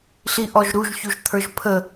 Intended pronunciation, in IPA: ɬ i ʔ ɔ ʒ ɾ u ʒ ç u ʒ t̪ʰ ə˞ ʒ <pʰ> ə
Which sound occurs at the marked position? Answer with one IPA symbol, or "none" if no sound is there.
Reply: pʰ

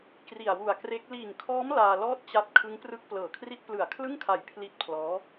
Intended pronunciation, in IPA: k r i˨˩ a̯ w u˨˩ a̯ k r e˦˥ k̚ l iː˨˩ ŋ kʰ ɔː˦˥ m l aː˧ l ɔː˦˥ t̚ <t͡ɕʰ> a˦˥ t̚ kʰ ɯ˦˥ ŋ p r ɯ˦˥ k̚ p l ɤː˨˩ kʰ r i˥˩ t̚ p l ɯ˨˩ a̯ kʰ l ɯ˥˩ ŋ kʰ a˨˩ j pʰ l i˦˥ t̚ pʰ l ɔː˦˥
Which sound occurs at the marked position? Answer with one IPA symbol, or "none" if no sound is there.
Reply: t͡ɕ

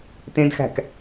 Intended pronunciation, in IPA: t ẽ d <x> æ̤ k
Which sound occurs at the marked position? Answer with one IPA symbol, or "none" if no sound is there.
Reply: x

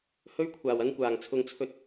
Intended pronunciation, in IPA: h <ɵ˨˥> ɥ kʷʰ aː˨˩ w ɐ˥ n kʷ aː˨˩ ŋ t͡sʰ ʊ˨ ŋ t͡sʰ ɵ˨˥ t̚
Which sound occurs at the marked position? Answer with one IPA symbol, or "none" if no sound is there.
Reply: ɵ˥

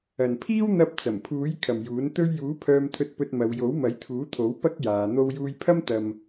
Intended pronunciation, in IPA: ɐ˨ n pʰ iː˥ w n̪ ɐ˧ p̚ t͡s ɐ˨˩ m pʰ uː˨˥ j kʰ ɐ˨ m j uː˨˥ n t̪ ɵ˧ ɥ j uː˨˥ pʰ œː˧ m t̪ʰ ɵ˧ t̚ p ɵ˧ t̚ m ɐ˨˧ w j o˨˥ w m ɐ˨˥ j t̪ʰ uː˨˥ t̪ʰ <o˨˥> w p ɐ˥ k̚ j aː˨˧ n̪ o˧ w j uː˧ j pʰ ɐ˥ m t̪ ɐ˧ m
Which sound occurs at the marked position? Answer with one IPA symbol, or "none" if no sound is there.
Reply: o˨˥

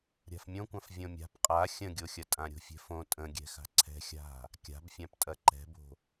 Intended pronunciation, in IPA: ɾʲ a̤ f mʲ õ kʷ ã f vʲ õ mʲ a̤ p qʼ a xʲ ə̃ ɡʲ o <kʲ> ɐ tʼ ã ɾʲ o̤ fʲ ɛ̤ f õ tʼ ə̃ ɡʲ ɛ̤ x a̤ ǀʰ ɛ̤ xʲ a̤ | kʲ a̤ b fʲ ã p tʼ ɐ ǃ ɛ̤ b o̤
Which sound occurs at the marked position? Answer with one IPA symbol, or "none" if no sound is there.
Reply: xʲ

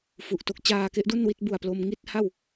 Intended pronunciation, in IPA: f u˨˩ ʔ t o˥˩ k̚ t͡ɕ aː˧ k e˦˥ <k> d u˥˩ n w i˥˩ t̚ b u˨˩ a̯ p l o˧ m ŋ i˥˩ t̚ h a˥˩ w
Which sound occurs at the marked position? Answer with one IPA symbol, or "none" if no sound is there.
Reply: ʔ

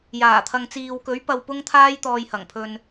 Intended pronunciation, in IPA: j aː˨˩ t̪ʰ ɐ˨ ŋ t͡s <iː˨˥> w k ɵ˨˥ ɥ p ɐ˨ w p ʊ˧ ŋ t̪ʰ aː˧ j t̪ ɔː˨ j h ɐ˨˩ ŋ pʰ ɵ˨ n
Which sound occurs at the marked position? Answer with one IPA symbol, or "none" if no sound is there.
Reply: iː˨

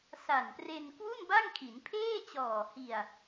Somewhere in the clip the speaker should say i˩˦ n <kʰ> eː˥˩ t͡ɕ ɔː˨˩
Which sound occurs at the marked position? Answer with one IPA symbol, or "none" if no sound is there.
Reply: pʰ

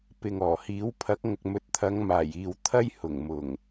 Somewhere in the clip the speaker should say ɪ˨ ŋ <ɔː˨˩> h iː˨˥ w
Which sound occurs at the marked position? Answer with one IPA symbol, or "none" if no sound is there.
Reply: ɔː˨˩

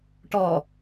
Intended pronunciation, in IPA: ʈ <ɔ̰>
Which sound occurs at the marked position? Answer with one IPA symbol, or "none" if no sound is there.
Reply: ɔ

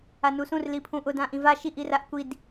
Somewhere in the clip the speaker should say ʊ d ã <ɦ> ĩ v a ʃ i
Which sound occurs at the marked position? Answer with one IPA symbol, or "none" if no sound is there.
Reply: ʔ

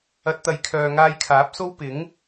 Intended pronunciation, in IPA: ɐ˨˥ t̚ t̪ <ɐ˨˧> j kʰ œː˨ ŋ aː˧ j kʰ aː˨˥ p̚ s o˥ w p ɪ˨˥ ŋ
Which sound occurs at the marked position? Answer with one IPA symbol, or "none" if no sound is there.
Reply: ɐ˨˥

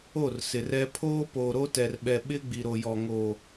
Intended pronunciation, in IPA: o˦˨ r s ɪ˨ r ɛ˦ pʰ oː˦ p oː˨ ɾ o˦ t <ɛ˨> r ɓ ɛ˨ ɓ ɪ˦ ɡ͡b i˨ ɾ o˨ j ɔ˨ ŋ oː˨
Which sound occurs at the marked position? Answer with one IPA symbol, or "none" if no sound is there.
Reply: ɛ˨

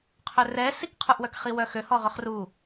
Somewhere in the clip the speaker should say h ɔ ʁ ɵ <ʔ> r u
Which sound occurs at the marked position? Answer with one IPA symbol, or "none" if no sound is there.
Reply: χ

